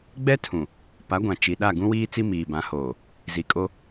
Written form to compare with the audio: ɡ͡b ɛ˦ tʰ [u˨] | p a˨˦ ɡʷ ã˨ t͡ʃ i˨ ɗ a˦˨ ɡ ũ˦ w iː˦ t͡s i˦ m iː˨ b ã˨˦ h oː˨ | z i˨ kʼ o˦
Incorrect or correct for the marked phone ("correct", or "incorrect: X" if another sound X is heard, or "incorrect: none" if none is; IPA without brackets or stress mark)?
incorrect: ũ˨